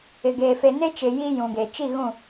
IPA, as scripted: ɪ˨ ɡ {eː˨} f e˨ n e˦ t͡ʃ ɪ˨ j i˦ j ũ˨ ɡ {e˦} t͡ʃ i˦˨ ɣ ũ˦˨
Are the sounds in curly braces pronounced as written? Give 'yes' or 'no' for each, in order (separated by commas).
yes, no